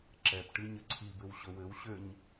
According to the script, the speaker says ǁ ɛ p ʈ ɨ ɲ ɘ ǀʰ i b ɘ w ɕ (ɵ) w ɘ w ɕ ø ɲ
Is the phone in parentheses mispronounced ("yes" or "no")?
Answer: no